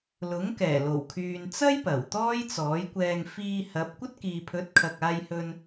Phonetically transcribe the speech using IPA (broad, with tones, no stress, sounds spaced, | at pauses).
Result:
l ʊ˨˥ ŋ k ɛː˨˩ l o˨˩ w kʰ yː˨ n t͡s ɐ˥ j p ɐ˨˩ w t̪ ɔː˥ j t͡s ɔː˨˥ j kʷ ɛː˧ ŋ f iː˧ h ɐ˨˥ p̚ kʷ ɐ˥ t̚ k iː˨ pʰ ɵ˨˥ t̚ kʰ ɐ˨ k̚ aː˧ j h ɵ˧ n